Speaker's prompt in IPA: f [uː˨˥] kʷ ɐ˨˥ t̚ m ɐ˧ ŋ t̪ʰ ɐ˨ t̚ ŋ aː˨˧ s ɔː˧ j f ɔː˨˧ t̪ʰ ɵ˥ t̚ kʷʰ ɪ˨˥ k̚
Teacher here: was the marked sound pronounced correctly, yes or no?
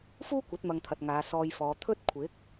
no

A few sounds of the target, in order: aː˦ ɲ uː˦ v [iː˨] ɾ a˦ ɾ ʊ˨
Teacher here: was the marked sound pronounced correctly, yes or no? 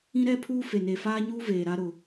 no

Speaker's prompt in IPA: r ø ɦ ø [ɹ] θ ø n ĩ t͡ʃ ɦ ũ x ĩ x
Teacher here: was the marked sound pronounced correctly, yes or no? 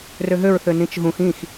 yes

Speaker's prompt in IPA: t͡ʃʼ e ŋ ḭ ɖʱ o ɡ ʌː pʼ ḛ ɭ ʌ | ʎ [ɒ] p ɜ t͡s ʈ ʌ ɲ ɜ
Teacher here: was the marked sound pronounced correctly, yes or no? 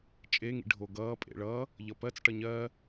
no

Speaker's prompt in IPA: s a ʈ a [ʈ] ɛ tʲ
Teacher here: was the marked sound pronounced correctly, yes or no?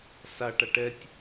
yes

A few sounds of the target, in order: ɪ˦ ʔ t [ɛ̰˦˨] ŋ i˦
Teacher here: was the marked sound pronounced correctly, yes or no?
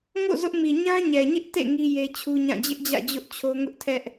no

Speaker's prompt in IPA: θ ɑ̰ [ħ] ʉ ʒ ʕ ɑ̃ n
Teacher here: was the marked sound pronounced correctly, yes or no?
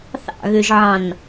no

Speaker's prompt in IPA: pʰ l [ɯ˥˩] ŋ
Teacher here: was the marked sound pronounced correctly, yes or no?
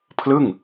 yes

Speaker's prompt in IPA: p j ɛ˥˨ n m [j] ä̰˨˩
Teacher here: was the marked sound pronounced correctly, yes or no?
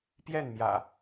yes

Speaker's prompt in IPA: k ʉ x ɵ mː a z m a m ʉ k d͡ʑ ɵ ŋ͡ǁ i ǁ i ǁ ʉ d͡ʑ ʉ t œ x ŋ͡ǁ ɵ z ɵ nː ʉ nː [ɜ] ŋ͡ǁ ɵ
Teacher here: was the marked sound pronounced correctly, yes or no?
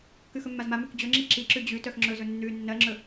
yes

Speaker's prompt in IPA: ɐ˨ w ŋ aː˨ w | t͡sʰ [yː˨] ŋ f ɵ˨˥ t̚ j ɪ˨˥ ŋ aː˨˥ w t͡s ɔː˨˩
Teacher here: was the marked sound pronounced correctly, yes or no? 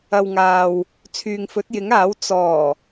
yes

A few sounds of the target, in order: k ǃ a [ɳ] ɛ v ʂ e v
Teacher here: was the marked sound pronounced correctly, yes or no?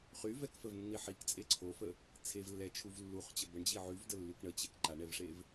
yes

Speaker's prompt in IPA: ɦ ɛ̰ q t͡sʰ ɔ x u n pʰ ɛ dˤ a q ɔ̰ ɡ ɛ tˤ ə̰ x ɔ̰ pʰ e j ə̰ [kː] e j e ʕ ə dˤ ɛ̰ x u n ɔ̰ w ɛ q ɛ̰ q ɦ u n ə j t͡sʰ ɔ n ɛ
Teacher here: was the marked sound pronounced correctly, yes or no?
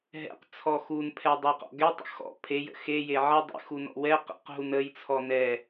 no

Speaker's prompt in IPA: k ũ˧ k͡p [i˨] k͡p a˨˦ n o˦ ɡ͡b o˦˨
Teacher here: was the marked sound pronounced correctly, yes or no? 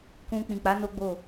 no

